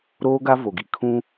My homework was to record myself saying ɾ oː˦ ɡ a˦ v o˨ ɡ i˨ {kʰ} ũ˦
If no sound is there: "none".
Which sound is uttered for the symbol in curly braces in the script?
kʰ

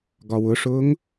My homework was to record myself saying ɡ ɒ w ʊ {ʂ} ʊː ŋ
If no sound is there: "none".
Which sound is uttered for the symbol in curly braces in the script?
ʂ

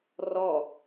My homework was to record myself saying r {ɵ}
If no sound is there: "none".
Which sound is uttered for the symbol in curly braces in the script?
ɔ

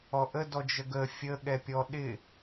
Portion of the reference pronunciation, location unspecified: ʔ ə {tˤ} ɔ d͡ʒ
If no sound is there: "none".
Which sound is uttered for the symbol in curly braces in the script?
d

